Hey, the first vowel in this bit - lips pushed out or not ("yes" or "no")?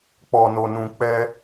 yes